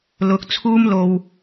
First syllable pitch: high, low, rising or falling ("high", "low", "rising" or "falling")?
rising